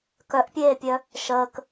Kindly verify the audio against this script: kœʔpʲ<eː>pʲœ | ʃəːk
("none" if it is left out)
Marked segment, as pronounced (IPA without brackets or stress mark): eː